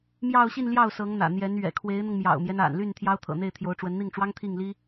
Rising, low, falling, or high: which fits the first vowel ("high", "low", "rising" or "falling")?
falling